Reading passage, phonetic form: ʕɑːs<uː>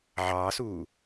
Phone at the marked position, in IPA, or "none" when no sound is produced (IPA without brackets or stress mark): uː